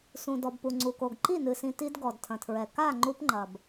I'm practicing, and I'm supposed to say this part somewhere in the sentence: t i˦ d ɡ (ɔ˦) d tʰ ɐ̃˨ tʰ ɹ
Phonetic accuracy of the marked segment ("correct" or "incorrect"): incorrect